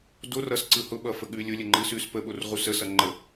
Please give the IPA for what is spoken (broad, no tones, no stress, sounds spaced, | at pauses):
d o r ʌ s ǀ ɯ h ʊ ɓ ʌ f ə ɠ ʉ lʲ ʊ lʲ ə ŋ͡ǃ ɯ s ʉ s p ə ɓ o r ʁ u s ə s ʌ ŋ͡ǃ ə